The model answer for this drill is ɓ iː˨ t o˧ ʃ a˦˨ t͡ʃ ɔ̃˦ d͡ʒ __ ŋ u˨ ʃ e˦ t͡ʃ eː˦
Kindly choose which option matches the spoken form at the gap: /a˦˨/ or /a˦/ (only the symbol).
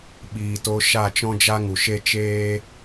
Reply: a˦